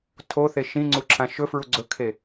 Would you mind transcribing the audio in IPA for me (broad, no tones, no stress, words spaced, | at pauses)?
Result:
tʰoθe ʃĩ ŋ͡ǀuǁʰãʃɵfɹu ɡ͡ǀɵkʰe